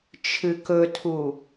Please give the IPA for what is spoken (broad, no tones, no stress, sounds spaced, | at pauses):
t͡ʃʰ ɨ k ɵ tʰ u